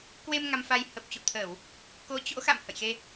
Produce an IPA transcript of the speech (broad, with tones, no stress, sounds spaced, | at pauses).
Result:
k w e˧ m ŋ a˧ m f a˧ j h ə˨˩ p̚ t͡ɕ ṵ˧˨ t̪ʰ əː˧˩˨ w | k o˨˦ t͡ɕ o̰˧˥ x a̰˧˨ m h ə̰˧˨ j x e˧